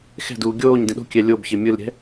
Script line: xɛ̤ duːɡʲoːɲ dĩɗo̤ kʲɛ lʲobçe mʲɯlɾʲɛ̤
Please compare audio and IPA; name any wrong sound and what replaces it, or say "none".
none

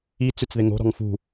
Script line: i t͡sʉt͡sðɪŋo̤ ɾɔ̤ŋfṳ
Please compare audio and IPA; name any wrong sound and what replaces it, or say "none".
none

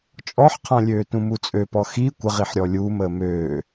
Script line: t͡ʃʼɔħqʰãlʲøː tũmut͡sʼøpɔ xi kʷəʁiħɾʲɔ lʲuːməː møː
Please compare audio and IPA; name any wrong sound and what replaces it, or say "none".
none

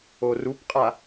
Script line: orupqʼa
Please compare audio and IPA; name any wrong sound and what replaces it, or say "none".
none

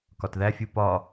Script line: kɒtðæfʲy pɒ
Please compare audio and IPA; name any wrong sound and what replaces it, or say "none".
y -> u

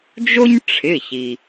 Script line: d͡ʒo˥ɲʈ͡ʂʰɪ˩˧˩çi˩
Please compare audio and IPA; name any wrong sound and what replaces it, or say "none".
none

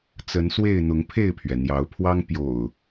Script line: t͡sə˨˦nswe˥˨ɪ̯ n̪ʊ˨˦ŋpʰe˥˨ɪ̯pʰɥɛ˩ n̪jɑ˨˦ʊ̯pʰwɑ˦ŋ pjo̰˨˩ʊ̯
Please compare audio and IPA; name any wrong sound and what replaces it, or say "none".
none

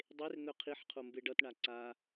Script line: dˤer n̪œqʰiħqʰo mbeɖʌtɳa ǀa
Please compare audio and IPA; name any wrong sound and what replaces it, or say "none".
none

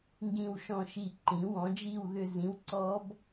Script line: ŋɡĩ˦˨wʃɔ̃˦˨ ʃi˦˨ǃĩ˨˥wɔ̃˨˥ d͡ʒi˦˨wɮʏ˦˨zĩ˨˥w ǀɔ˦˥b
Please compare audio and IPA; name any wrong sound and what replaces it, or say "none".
ɮ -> ð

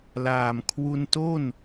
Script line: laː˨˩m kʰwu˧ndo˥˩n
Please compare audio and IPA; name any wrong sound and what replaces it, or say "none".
d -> t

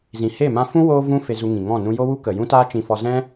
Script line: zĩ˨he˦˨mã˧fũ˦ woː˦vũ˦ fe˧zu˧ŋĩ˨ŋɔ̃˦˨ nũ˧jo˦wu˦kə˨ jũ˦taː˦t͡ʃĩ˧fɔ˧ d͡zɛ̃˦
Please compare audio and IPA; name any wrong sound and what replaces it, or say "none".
d͡z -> z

